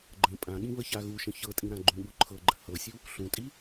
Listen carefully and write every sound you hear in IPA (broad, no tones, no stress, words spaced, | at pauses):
ɡ͡ǃə̃ pʼãɠĩβəça ɣuʃə̃ çɤtʼĩɾã ɡ͡ǃũɠu ǃʰɤɡ͡ǃə hɤsʲu | ɬũtʼi